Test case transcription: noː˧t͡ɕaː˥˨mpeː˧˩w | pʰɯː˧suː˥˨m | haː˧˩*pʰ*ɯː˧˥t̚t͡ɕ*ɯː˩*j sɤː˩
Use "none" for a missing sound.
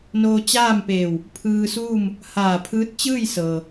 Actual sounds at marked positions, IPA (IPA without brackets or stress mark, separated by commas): pʰ, ɯː˥˨